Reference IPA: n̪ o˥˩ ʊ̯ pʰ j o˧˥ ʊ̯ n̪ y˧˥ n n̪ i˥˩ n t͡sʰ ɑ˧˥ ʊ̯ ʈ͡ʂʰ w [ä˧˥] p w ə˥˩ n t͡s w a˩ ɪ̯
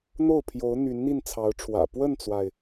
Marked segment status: incorrect: ä̰˨˩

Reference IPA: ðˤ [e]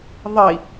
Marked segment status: incorrect: i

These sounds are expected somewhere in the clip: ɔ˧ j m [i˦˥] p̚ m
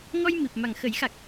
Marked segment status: incorrect: i˨˩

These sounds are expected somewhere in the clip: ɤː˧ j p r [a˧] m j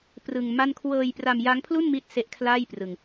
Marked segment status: correct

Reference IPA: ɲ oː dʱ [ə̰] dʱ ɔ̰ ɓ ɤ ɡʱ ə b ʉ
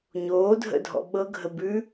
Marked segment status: correct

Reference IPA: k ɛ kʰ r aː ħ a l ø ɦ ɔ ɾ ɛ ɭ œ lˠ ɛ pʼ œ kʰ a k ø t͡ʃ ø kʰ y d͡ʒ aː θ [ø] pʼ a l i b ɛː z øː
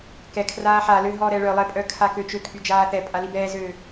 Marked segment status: incorrect: ɛ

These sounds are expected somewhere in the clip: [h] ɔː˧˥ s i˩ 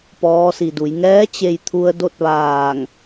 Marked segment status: incorrect: p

